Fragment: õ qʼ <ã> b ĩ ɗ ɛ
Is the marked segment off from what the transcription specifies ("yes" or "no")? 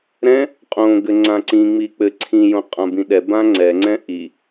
no